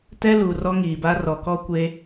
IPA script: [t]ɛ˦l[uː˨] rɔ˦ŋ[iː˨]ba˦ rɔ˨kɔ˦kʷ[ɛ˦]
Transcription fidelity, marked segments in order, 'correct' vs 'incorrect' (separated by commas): correct, incorrect, correct, incorrect